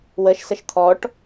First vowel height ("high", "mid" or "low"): mid